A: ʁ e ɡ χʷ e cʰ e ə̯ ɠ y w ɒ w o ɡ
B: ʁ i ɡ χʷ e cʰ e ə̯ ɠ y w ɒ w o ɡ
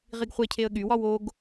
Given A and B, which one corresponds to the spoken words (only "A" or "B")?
B